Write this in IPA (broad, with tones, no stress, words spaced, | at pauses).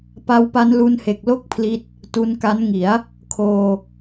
pa˧wpa˧nlu˧nhe˨˩k̚ lo˥˩k̚pʰli˦˥t̚ | tu˧nka˦˥nŋi˩˦a̯ | kʰoː˧